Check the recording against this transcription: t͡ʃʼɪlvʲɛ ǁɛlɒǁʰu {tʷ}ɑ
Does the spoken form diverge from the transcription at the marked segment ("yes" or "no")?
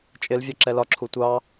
no